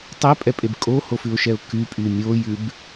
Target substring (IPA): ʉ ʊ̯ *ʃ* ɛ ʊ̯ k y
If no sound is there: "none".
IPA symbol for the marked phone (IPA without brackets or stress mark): ʃ